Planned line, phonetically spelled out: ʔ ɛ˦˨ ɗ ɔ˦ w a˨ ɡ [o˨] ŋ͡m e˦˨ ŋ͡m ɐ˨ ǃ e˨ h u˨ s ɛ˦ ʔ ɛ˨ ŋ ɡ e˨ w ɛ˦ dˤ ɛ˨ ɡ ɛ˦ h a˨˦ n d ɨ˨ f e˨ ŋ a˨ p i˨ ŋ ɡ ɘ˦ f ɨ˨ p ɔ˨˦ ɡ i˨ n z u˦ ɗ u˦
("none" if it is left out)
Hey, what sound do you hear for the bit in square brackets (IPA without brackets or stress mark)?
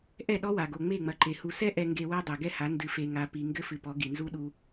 o˨